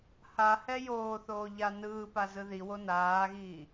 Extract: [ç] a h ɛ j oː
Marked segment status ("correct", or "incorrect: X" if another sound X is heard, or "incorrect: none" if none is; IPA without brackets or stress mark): incorrect: h